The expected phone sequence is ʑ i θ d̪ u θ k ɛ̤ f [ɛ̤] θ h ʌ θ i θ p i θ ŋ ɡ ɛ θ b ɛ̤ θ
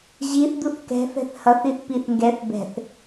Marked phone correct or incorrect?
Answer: correct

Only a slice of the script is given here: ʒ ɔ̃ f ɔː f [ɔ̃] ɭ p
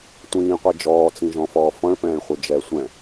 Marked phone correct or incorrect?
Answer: correct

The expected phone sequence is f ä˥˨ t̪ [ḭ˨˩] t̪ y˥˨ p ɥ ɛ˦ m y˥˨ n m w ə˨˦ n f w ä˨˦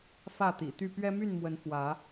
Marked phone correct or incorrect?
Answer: correct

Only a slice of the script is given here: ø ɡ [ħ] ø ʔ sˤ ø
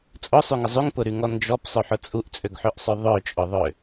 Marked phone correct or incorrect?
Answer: correct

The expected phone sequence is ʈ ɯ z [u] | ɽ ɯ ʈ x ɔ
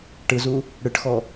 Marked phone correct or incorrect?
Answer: correct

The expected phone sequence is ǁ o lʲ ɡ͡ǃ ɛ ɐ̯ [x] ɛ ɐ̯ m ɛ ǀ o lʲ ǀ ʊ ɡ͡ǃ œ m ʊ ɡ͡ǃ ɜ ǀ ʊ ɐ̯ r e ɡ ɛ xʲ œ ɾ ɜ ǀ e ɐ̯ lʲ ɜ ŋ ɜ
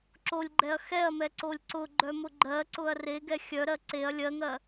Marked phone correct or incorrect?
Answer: correct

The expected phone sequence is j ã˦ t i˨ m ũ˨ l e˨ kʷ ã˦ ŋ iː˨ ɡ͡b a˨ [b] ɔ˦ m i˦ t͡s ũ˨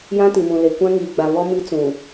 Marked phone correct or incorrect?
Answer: incorrect: β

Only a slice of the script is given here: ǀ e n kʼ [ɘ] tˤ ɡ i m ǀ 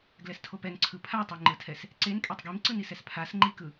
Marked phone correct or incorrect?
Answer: incorrect: e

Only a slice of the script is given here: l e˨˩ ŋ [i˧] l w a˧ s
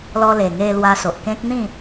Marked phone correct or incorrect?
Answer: incorrect: e˧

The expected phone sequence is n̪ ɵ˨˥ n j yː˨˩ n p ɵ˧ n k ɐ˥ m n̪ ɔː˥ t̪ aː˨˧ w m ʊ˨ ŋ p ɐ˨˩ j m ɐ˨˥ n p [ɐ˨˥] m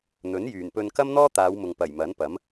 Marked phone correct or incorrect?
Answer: correct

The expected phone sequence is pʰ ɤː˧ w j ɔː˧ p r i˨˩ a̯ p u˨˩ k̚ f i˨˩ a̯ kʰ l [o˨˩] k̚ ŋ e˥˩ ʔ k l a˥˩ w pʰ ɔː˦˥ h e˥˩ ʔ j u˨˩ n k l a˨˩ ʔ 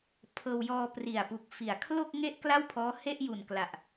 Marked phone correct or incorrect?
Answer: incorrect: o˥˩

